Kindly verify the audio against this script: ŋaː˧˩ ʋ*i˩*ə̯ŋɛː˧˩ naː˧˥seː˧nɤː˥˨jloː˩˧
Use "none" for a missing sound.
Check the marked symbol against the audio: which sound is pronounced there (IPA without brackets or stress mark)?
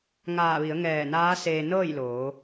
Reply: i˩˧